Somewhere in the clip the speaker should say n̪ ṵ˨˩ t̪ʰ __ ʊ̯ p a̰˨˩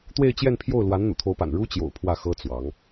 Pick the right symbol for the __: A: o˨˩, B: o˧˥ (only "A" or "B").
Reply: B